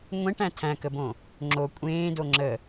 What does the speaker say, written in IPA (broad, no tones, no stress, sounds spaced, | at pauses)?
ŋʷ ẽ ʈ æ̃ tʰ æ̃ k ə b õ | ŋ͡ǁ o kʷʼ ẽː d o ŋ͡ǁ ə